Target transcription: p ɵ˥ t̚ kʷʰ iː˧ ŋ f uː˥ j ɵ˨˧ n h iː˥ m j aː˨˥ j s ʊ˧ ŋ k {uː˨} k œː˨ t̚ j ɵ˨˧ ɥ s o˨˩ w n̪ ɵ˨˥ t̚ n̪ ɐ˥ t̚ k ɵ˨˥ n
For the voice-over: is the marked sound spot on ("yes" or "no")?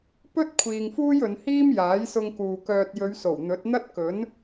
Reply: yes